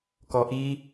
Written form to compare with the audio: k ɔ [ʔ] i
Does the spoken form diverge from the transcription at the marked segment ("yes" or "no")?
no